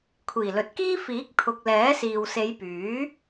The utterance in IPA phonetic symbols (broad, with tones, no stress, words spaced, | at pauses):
kʷʰiː˨˩lɵ˨t̚kiː˥ fiː˨˥k̚ t̪ʰʊ˨k̚ lɛː˨˥siː˨w se˨˧jpyː˨˥